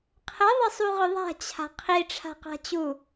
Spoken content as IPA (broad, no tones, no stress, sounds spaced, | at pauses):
qʰ ə ðˤ ə sˤ u ʁ ʏ ðˤ a̤ t͡ɕʰ a̤ qʰ i ʈ͡ʂʰ a̤ q a̤ t͡ɕ u